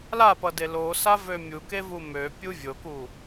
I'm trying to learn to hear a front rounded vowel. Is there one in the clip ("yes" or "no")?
yes